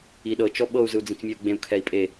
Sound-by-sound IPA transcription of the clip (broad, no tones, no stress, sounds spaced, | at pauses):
i ɗ ɤ t͡ʃ ɔ ɓ ɤ u̯ z ɯ u̯ d͡z ĩ t͡s mʲ ɛ u̯ ɡ͡b ẽ u̯ kʰ ɛ i̯ pʼ e